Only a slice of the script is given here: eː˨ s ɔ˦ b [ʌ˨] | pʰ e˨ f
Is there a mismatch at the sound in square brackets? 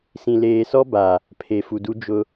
yes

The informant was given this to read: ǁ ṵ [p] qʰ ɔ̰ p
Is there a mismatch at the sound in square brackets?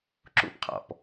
no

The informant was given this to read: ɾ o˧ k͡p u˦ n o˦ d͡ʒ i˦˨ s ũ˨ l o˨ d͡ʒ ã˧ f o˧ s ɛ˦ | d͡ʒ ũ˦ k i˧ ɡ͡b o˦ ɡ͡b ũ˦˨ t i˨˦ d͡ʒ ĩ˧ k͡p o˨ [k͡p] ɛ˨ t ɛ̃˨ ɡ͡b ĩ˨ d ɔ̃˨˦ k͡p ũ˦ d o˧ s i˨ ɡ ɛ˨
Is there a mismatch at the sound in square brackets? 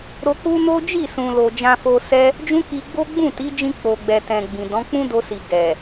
yes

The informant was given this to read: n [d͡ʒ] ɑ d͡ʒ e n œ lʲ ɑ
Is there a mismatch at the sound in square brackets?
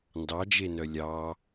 yes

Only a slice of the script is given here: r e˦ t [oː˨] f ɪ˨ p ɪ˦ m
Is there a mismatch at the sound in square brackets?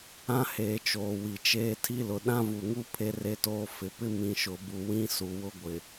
yes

